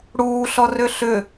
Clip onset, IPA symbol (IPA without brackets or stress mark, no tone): ɽ